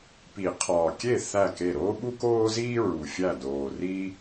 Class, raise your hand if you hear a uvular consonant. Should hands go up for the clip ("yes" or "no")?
yes